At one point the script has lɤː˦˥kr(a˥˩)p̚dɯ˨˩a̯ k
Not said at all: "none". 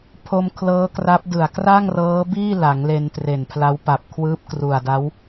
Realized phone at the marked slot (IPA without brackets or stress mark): a˦˥